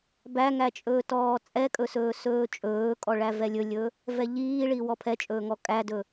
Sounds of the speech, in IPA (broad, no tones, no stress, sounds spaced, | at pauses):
b æ ŋ æ t͡ʃʼ ɵː t ɔː t͡sʼ ɛ kʼ ɵ s ɵː s ɵː t͡ʃʼ ɵː kʼ ɔ ɭ æ v ɛ lʲ ɵ lʲ ɵ | v ɛ ʎ iː ɭ i w ɔ pʰ ɛ t͡ʃʼ ɵː ŋ ɔ kʼ æ d ɵ